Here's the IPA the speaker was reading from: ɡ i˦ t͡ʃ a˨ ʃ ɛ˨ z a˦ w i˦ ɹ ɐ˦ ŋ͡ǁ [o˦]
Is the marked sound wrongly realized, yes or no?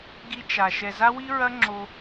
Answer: no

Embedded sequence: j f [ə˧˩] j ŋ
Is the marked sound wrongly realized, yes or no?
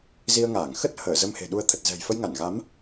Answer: yes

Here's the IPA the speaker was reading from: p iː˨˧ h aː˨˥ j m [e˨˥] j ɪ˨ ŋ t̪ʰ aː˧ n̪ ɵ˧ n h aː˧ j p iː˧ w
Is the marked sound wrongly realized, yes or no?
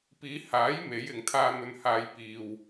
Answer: no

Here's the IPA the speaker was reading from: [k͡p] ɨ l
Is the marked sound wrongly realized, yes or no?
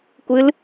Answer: yes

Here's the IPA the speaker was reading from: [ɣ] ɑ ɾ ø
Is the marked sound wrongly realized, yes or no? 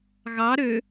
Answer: no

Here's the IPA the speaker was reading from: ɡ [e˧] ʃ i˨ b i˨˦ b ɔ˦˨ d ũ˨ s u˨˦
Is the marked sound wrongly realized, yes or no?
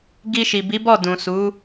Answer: yes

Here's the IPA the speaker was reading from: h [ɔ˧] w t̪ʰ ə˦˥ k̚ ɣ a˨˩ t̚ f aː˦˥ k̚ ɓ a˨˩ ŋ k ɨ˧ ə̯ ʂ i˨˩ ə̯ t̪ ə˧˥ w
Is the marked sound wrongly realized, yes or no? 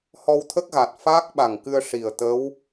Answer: no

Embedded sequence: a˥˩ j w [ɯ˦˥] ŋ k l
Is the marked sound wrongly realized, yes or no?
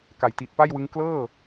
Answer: no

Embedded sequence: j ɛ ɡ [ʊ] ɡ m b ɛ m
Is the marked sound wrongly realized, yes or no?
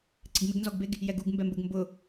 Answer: yes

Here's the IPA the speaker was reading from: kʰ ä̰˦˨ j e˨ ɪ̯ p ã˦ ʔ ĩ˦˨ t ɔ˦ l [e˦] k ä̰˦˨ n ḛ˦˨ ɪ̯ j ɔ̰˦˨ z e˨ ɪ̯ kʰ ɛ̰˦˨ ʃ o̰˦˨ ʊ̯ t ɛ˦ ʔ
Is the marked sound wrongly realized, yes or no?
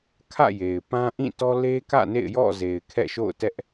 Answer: no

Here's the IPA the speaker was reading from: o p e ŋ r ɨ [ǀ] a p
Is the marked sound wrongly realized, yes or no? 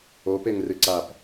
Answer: no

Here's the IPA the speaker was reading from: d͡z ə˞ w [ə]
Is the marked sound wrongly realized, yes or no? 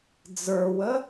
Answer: no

